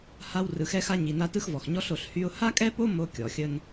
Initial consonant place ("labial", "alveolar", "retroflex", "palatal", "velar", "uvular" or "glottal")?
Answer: glottal